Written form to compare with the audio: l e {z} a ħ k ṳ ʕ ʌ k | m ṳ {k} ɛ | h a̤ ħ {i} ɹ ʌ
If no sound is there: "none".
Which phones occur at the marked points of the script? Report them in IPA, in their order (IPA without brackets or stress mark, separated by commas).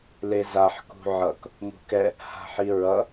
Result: z, k, i